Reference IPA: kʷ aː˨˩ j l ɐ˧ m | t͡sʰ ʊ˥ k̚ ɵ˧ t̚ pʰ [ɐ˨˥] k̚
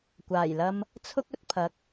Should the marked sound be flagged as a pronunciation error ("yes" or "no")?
no